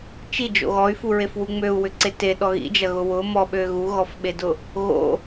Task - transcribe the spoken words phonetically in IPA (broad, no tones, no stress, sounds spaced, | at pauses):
t͡ʃ i d͡ʒ o̰ ɣ ɔ y̯ f u ɹ e f w u ŋ͡m ø u̯ w ʏ ǀ e t e ɗ ɔ ɣ ḭ d͡ʒ ɐ ɣ ʊ w ʊ m ɔ ɓ ø ɣ u ɣ ɔ f ɓ e d ʊ | ɣ o̰